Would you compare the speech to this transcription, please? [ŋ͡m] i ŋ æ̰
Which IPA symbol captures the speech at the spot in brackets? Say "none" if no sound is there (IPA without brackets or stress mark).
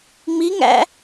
ŋ͡m